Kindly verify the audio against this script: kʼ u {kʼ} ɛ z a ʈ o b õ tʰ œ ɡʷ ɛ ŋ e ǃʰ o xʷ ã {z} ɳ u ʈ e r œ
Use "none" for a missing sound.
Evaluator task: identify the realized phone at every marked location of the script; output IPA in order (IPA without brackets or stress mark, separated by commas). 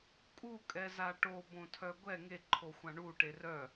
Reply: kʼ, none